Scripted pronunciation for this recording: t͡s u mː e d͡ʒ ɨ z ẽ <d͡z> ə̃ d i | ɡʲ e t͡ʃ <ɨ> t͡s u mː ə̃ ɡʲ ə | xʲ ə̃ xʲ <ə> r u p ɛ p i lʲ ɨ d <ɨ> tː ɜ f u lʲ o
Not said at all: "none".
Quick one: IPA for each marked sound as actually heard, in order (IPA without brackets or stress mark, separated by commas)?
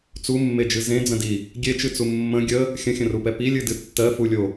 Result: d͡z, ɨ, ə̃, ɨ